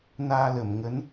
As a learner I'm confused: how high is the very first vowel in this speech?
low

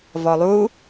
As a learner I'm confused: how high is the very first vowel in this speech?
mid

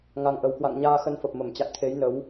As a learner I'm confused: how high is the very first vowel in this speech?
low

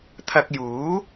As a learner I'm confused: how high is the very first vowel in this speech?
low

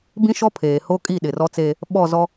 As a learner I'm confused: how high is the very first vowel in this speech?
high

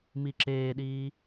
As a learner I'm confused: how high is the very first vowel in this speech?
high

